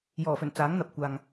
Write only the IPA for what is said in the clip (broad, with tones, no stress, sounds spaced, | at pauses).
j ɔː˨˩ f ɵ˨˩ n t͡s aː˨˥ ŋ n̪ ɐ˨ p̚ kʷ aː˨ ŋ